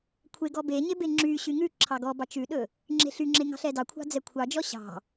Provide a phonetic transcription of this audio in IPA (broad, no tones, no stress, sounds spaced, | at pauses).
kʷʰ e ɡ ɔ b e ɲ e b e ŋ͡ǁ y ɕ y ŋ ʉ ǁʰ ɑ ɡ ɔ b ɑ t͡ʃ ʉ ɗ ɵ | ŋ͡ǁ e̤ ɬ y ŋ͡ǁ e ŋ ɑ̤ ɬ ɛ d ɑ kʷʰ ɑ̤ d͡z ɛ kʷʰ ɑ d͡ʒ ɔ ɕ ɑ̤